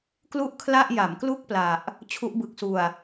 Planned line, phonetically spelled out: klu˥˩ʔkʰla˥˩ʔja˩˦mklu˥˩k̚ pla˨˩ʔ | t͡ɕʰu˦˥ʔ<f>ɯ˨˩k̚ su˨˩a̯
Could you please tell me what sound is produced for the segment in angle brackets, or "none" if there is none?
b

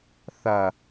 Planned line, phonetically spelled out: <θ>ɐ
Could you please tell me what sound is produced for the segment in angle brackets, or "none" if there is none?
θ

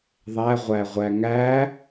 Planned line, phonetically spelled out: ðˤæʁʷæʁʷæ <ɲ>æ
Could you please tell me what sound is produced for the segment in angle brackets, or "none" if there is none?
ŋ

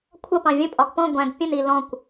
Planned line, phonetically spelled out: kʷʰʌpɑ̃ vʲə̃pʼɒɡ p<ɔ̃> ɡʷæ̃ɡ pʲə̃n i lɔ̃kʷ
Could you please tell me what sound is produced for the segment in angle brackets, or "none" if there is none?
ɔ̃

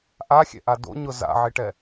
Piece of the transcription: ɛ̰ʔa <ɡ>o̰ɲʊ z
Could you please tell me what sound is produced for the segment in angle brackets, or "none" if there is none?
d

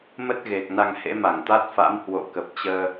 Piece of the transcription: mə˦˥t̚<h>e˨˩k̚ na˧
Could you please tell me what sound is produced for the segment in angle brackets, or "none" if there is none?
ɣ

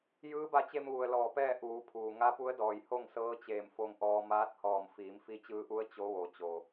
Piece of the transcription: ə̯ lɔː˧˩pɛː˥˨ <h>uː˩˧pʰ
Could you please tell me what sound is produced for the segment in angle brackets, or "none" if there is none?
ʔ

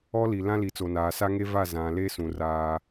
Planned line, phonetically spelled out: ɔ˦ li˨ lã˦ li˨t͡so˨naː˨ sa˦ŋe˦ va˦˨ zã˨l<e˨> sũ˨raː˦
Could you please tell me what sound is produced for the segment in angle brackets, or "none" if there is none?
e˦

